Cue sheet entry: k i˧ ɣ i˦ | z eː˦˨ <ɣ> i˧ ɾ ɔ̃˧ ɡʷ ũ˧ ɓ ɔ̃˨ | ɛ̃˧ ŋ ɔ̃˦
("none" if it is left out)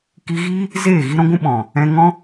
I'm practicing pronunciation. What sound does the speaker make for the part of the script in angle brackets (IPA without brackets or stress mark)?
ɣ